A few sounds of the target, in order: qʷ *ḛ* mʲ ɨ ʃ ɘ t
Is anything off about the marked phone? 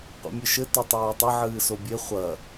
no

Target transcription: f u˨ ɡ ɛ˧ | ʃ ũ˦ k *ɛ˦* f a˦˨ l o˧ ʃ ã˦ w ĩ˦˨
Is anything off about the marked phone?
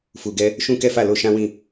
no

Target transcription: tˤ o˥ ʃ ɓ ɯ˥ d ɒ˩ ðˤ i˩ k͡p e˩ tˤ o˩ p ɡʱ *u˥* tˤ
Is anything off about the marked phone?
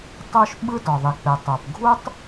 no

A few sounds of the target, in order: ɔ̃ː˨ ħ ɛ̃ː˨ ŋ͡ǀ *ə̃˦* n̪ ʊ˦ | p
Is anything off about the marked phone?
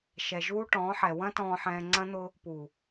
yes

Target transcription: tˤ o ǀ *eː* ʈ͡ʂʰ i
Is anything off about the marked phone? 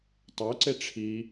yes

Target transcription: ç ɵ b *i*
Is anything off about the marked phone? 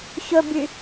yes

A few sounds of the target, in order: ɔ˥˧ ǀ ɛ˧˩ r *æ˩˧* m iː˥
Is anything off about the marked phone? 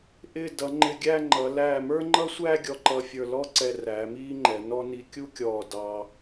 yes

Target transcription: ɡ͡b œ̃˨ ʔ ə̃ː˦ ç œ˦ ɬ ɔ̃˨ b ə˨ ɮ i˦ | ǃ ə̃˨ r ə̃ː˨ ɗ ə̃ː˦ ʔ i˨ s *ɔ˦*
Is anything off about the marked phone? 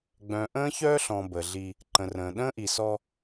no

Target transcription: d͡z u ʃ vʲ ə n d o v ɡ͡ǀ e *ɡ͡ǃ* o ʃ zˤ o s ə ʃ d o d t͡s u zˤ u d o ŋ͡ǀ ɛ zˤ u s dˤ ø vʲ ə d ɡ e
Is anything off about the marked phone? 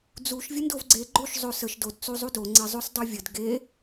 no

